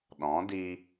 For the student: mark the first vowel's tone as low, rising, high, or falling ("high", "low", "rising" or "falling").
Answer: rising